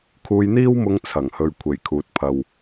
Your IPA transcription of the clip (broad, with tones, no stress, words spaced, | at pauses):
kʰuː˧jn̪iː˥wmʊ˧ŋ t͡sʰɐ˨˩ŋhɵ˨ɥ kʷʰe˨˩jkʰuː˨t̚pʰɐ˨w